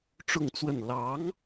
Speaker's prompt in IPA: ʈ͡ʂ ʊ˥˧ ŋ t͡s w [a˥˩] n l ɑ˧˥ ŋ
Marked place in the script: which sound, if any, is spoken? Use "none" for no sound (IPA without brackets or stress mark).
ə˥˩